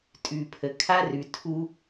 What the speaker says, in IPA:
tʼ ʉ˨ pʰ ə˨ kʰ a˦ r ʉ˨ tʰ u˦

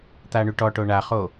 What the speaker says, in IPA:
t̪ a ɳ y ʈ ɔ ʈ o ɳ a χ o

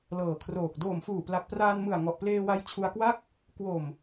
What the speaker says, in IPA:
l ɤː˨˩ kʰ r oː˨˩ k̚ d oː˨˩ m f uː˨˩ p l a˨˩ k̚ p r aː˧ n m ɯ˨˩ a̯ ŋ ɔ˨˩ ʔ p l eː˧ w a˧ j t͡ɕʰ u˧ a̯ k w a˥˩ k̚ | k w o˨˩ m

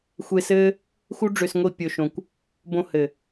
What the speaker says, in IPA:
xʷ e˧ s ɘː˦ | x u˧ ɖ͡ʐ ø˨ s ŋʷ i˨ pʲ o˨ ʃ õ˨ kʷ | b õ˧ h ɘ˨

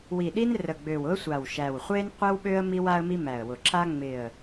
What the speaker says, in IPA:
w i˨˩ ɗ i˦ n r ə˨˩ ɡ͡b ø˨˩ w ʊ˦ ə̯ sʷ a˨˩ w ʃ æ˨˩ w χʷ e˦ n qʷ ɪ˦ w ɓ ø˦ ə̯ m i˦ w a˦ ə̯ m i˦ m æ˨˩ ə̯ w ʊ˨˩ ǁ a˦ ŋ͡m ɪ˨˩ ə̯

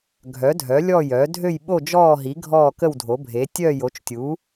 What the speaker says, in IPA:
ɡʱ œ˩˥ dʱ œ˩˥ lʲ ɔ˦˨ j œ˩˥ dʱ ø˦˨ j ɓ o˦˨ d͡ʒ ɔː˦˨ ɦ i˩˥ ɡʱ ɔː˦˨ k ə˦˨ w dʱ o˩˥ bʱ e˩˥ tʲ œ˦˨ j o˩˥ t͡ʃ tʲ u˩˥

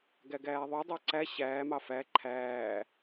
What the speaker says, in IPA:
ɡ æ ɡ æː ðˤ u dˤ ɑ ǀ æ ɕ æː m ɑ f æ ǃʰ æː

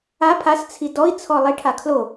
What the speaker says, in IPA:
a pʰ a s t͡sʰ i d ɔ i̯ t͡sʰ ɔ lˠ i ʈʰ a kʰ l o

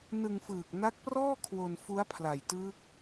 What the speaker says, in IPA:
n ɯ˧ ŋ f ɯː˨˩ k̚ n a˦˥ k̚ p r ɔː˥˩ kʰ w o˧ n f u˦˥ a̯ pʰ l a˨˩ j t ɯː˦˥ k̚

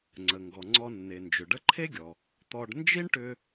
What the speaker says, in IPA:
ŋ͡ǀ ə˩ ŋ ɡ ɔ˩ ŋ͡ǀ ɔ˧ nː e˩ n d͡ʒ ʏ˩ ɖ ə˥ ǃʰ e˥ ɡʲ ɔ˩ | t̪ ɔ˧ ɖ n d͡ʒ i˥ ɳ ʈ ʏ˧

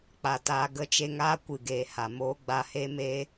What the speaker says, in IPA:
k͡p a˧ t aː˦ ɡ ə˦ t͡ʃ e˧ ŋ aː˦ kʷ ɨ˨ ɡ eː˨ h a˨ m oː˦ ɡ͡b a˧ h e˦ m eː˦

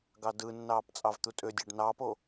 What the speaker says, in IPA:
ɡ ɑ d ɯ nː ɑː p t͡sʼ ɑ v t̪ u tʼ ø dʲ ɑ ɖ n ɑː p o

